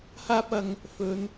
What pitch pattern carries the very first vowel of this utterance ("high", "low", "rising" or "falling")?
high